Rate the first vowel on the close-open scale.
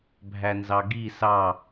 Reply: open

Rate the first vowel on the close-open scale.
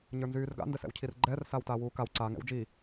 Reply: mid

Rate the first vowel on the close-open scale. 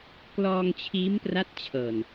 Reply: mid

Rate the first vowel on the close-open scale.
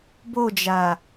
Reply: mid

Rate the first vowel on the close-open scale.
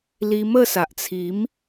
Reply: close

